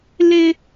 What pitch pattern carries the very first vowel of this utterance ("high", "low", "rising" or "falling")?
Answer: high